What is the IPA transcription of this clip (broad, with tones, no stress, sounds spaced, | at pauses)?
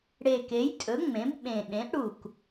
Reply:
ɽ e˨˩ k e˩˥ j tʼ ɵ˩˥ ŋ͡m ẽ˩˥ b ɓ ẽ˨˩ ɗ ẽ˩˥ ʔ ɽ u˨˩ k